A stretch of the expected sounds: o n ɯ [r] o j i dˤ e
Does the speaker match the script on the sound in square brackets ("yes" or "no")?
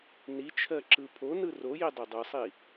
yes